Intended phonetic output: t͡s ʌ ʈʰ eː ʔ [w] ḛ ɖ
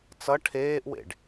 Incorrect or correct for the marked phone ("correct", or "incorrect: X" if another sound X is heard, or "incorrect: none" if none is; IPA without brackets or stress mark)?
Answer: correct